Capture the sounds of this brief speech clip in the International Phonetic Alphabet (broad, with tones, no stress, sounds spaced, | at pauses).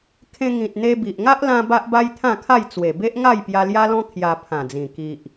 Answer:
kʰ ẽ˧ ŋ ĩ˨ t̚ n̪ e˧ b i˨ ʔ ŋ a˦ ʔ l ã˧ b a˦ ʔ b a˦ j t̪ʰ ã˥˧ kʰ a˥˧ j t͡s w e˨˩ b e˦ ʔ ŋ a˥˧ j p j a˧ l j a˦ l ɔ̃˦ kʰ j a˧ pʰ ã˨˩ d͡z ĩ˨˩ k i˨ ʔ